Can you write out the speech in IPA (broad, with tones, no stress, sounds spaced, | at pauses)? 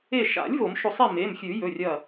e˧˩ ʃ a̰˨˩˦ lʲ v o˨˩˦ m ʃ o˧˩ sˤ i˥˨ m e˩˧˩ m xʲ ʉ˨˩˦ j ɵ˩˧˩ rʲ ɐ˧˩